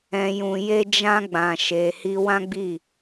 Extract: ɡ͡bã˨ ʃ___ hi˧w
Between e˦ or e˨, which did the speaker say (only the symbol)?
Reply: e˨